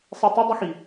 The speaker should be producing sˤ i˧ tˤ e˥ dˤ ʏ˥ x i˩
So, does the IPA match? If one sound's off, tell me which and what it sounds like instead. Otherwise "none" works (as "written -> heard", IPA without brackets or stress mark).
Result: e˥ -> i˥